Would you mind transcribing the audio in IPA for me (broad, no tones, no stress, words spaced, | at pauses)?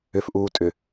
ʏfʔuːtʼʏ